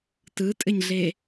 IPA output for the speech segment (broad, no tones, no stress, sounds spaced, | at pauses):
t ɯ tʼ ɘ ɲ ɮ e